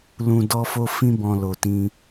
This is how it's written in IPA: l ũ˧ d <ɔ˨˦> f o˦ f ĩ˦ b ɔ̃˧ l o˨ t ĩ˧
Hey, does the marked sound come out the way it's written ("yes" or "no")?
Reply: no